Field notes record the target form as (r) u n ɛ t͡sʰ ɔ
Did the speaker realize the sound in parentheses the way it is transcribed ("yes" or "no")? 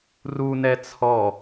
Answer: yes